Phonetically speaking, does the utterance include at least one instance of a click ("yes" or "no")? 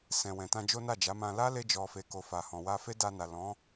no